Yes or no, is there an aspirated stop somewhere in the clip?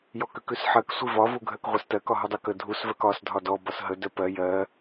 no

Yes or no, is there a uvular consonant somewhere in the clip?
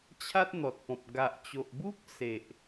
no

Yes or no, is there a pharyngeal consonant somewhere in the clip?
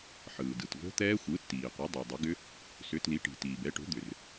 yes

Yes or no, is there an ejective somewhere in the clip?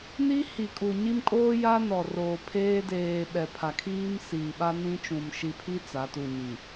yes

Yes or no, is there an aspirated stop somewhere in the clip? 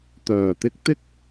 no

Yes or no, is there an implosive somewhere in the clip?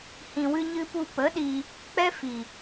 yes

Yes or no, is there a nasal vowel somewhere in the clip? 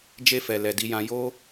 yes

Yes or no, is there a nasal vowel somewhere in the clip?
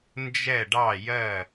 no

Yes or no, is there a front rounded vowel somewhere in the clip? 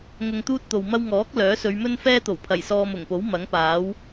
yes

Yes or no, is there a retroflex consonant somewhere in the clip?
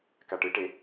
yes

